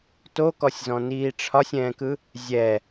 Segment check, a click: absent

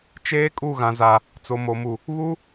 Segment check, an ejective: present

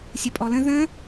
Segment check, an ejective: present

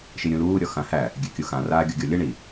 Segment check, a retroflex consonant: present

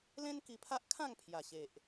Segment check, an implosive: absent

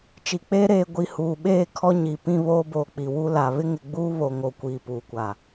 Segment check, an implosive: present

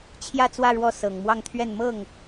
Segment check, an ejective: absent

